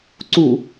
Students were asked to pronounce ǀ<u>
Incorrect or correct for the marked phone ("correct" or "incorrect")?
correct